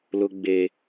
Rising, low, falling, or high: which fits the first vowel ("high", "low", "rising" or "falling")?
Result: high